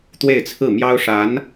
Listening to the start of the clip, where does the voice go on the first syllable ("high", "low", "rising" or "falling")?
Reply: falling